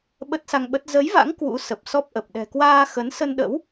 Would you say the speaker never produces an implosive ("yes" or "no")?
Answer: no